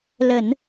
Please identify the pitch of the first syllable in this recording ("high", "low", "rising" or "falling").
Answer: low